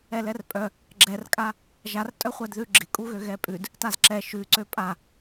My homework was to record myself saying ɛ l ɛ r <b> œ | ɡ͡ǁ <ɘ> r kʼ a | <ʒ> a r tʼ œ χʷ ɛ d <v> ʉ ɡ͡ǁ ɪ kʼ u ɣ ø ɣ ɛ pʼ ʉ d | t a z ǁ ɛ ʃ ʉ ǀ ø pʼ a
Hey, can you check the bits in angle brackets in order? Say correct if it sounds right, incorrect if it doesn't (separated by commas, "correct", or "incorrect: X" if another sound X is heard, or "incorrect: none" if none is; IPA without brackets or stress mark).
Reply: incorrect: pʼ, incorrect: ɛ, correct, incorrect: ð